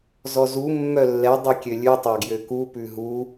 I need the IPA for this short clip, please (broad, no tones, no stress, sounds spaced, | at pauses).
z ɔ z u mː œ lː ɛ dˤ i kʲ ø lʲ ʉ tˤ ɑ ɡ j ø k u p ʉ ɦ u